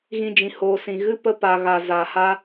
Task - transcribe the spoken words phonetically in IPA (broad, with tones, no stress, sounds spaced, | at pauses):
ɣ ĩ˧ d͡ʒ ĩ˨ h oː˨ s ĩ˨ ɣ ɨ˧ p ə˧ p a˨ ɣ a˨ z a˨ h a˧